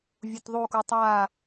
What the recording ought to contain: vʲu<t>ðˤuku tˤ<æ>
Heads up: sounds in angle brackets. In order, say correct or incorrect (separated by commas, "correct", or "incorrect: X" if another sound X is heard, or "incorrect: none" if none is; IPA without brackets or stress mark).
correct, incorrect: a